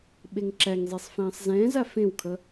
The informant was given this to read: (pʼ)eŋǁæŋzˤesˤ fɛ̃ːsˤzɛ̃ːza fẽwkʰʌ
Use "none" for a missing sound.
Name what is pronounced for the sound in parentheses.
ɓ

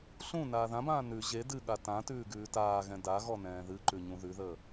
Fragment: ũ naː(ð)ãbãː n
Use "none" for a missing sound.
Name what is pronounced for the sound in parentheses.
ð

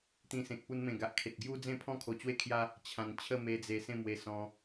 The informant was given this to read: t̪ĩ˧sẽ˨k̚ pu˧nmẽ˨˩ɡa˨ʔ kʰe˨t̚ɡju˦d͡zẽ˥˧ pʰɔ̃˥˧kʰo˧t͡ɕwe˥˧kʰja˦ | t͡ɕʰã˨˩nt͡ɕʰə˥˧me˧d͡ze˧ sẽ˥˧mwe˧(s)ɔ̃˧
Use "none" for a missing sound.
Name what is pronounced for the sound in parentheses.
s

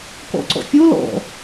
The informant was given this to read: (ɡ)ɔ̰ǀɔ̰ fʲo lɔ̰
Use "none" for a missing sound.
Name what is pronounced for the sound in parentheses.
k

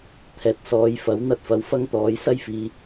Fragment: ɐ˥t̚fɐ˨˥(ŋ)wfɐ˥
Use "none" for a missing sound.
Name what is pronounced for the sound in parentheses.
none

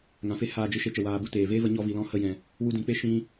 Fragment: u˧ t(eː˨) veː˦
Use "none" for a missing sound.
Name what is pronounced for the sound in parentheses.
eː˨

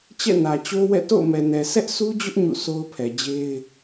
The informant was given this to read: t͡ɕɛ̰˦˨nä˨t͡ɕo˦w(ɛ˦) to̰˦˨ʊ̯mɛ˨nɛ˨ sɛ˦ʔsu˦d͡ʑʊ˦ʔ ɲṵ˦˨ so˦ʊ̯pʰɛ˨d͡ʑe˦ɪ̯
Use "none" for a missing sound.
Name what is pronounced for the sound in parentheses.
ɛ̰˦˨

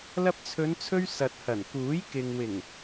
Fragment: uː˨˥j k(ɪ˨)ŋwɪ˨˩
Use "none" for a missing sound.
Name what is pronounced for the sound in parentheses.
ɪ˨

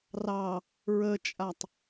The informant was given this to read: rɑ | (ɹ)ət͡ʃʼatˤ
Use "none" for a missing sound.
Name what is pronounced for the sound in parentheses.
ɹ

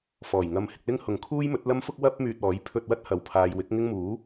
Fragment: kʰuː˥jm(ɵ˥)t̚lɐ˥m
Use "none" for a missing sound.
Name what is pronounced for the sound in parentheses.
ɵ˨˥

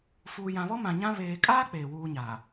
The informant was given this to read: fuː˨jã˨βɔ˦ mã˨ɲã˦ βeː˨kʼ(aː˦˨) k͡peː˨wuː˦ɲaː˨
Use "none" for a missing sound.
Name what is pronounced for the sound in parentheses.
aː˦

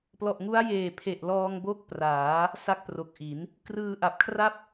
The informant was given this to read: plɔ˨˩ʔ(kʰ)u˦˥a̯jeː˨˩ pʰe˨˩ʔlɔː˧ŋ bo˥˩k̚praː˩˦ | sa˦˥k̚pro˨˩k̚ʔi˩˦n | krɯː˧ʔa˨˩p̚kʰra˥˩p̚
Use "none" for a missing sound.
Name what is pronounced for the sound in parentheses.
ŋ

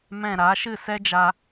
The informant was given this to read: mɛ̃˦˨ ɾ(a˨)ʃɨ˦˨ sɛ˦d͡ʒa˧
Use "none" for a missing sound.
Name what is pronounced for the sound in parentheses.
a˨˦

